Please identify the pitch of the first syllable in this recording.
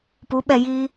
rising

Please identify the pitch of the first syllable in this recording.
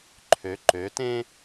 rising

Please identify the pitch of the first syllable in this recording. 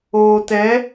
low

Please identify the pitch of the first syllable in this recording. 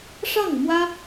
falling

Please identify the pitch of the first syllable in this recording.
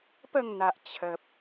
falling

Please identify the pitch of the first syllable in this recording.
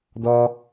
high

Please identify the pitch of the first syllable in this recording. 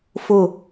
falling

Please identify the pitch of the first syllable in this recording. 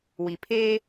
low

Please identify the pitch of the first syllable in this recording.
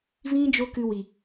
high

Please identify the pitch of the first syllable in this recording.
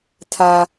high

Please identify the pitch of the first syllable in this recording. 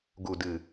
low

